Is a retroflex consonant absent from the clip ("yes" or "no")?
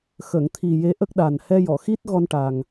no